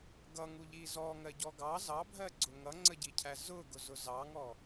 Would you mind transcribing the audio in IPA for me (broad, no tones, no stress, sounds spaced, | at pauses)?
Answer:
ɡ ʌ ŋ u ʎ i z ɔ ŋ ɜ ɟ ɔ ɡ ɑ z ɑ bʱ ɜ ɡ͡ǀ ʊ ŋ ʌ ŋ͡ǀ ə ɟ i cʰ æ z ʊ ɡ ʊ z ʊ z ɑ ŋ ɔ